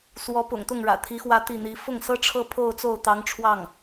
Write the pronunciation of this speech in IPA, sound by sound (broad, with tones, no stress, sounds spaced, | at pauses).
s w ɔ˧˥ p ʊ̰˨˩ ŋ t̪ ʊ˥˩ ŋ ɻ ä̰˨˩ t̪ʰ i˧˥ x w ä˥˧ t̪ i˥˩ n̪ i˧˥ f ʊ˥˩ ŋ s ɤ˥ ʈ͡ʂʰ ɤ˥ pʰ o˥˧ ʊ̯ t͡s o˥˩ ʊ̯ t̪ ɑ˧˥ ŋ ʈ͡ʂʰ w ɑ˥˩ ŋ